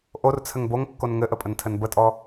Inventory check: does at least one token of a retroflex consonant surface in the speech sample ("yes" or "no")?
no